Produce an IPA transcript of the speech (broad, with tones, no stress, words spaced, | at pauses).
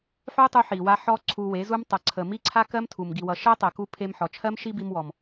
ħu˦tˤu˧ ħi˨wa˧ ħɔ˦ǀʰu˧we˨˦zu˦m tˤʌ˨ǀʰə˨ mi˦ǀʰa˦kɜ˦mtʰu˨m ɡi˨wʌ˨ʃɜ˦tˤɜ˨ ku˧pʰe˧mħɔ˨t͡ʃʰɜ˦m ʃi˦bi˧mwɔ˨m